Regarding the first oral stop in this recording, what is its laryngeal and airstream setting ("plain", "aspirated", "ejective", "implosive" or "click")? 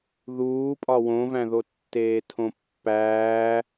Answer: ejective